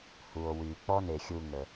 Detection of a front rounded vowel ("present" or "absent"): present